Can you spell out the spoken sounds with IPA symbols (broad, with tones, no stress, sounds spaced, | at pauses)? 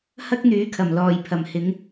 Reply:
h ɐ˥ k̚ n̪ yː˨˥ kʰ ɐ˨˩ m l ɔː˨˩ j pʰ ɐ˨˩ m h ɪ˨˥ ŋ